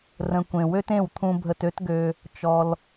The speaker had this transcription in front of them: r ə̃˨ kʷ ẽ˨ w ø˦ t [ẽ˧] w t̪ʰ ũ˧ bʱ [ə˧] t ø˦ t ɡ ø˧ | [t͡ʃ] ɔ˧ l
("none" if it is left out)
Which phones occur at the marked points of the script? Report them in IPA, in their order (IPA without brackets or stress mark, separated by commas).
ẽ˦˨, ə˧, t͡ʃ